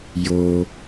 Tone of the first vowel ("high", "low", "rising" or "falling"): low